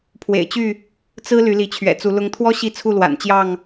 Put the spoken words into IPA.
pʰwḛ˨˩ɪ̯t͡ɕy˥˨ | t͡sɹ̩˦ ly˨˦li˨˦t͡ɕʰɥɛ̰˨˩ t͡su˨˦lʊ˦ŋ t̪ʰwɔ˦ ɕi˥˨t͡sʰu˥˨ lwa̰˨˩nt͡ɕjɑ˥˨ŋ

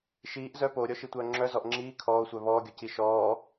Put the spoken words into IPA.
ʃiːʔ zœ poːɾʲɔʃitʷœː ŋ͡ǁœzɔʔ ŋ͡ǁiː kʰɔːo̯sʷœ βɔːɡʲɔci ʃɔː

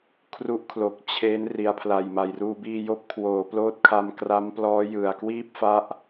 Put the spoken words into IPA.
kʰru˦˥ʔkʰlo˨˩k̚ t͡ɕʰe˦˥n ri˩˦a̯pʰla˨˩jma˨˩j ruː˧biː˧joː˥˩p̚ kʰwoː˩˦ ploː˦˥t̚kʰa˧mkra˦˥mplɔː˦˥ jɯ˨˩a̯kwiː˥˩p̚fa˦˥ʔ

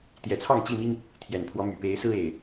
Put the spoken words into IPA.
t̪jɛ˨˩t͡sʰɑ˥˨ŋt͡ɕi˥˨mi˦ŋ | t̪ʰjɛ˨˩npʰwɔ˨˦my˨˩ pe˨˦ɪ̯sɹ̩˦e˨˩ɪ̯

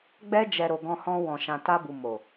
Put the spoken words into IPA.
ɡ͡bɛ˧d͡ʒɛ˨ ɾo˨ɡɔ̃˧hɔ̃˧ wɔ̃˨ʃã˨ta˧bu˨ mo˨

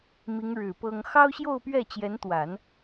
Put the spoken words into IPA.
mi˧˥ŋɻɻ̩˨˩ pɤ˥ŋ xɑ˥ʊ̯ɕjo˥˧ʊ̯pɥɛ˥˩ t͡ɕjɛ˧˥nt̪wa˨˩˦n

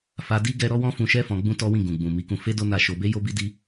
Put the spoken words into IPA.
fa˧di˦ ɡɛ˦ ɾɔ˦wɔ̃˦fũ˧ʃɛ˦ fɔ̃˧ ɡ͡bũ˦tɔ˦wĩ˦˨ ɡũ˨ɡ͡bũ˨ mi˨˦kũ˧ fe˦ do˦na˦˨ʃo˧ be˦jo˦bi˦di˦

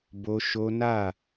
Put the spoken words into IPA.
bo˦ ʃo˦ nä˦˨

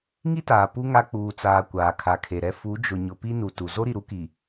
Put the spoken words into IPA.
ŋi˦taː˨ pu˦ ŋa˦ k͡puː˨t͡saː˨ kʷaː˨kʰa˨kʰe˨ɾɛ˦ fu˨˦d͡ʒʊ˨ ɲʊ˨pi˦nu˨ tu˨ zo˦ɾi˨ ɾu˦ki˨

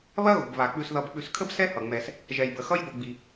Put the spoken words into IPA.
βɐ˦ɣo̤˩b βa˩k͡pʉ˨s ðʌ˨bk͡pʉ˨skʰə˥b sɛ˥hʌ˩ŋ͡mɛ˨s | ʒɛ˩jbə˩ xʌ˥jbo˨ɡ͡bi˩

